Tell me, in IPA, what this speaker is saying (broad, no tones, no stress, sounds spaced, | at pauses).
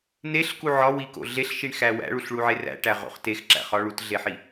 n e ɬ k u ʕ ɒ w i k o̰ ɮ e ɬ ʃ i ɳ x æ w æ̰ ɭ u ɬ ɭ u ʕ e r æ̰ ʈ æ ʁ o̰ χ t e x ǁ æ̰ χ ɒ ɭ u t ɮ e ħ i